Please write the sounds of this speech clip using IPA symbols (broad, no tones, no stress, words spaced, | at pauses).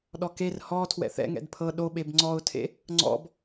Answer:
ɗɔker hɔ tʰwɛ̰θɛ̰ ŋɛ̰dpʰɤ ɗoɓeb ŋ͡ǀɔʊ̯tʰḛ | ŋ͡ǀɔ̰b